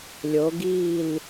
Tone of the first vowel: rising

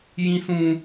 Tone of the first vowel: high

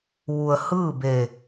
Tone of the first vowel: low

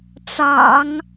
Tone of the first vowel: low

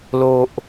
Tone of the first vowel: low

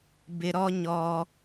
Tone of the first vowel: high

